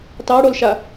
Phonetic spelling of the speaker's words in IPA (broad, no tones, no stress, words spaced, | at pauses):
tɑɽolʃa